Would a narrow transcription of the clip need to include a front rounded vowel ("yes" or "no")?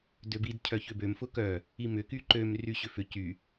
yes